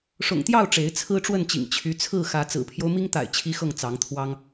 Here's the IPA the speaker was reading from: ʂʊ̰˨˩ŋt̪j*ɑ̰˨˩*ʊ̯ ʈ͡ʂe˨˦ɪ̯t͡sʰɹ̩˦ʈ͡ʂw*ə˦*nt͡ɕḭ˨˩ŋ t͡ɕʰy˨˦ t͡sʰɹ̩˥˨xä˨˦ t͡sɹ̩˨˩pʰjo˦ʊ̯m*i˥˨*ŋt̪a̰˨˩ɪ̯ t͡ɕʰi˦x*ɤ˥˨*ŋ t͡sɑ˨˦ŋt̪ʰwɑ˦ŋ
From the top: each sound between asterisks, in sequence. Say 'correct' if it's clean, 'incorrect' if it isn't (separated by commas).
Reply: incorrect, incorrect, incorrect, correct